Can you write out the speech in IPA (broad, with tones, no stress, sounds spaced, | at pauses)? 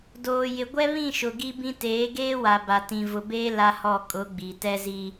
d oː˨ j ɪ˨ ɡʷ ɛ˦ β ĩ˦˨ ʃ ʊ˨ ɡ i˦ b ĩ˦ t eː˨˦ ɡ eː˦ w a˨ b a˨ t ĩ˨ v ʊ˨ b eː˦ l a˦ h ɔ˦˨ kʼ ʊ˨˦ ɡ͡b i˨ t ɛ˦ z i˦